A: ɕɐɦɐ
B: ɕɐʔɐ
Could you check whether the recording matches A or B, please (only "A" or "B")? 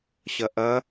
B